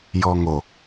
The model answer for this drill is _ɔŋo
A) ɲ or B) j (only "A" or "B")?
B